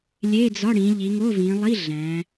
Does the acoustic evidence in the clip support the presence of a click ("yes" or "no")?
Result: no